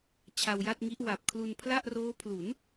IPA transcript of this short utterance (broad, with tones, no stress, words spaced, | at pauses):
t͡ɕʰa˧wja˥˩t̚ŋi˦˥ʔ wa˨˩p̚kʰlu˧n pʰla˥˩ʔroː˦˥ pʰlu˩˦n